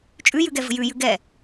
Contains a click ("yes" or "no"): no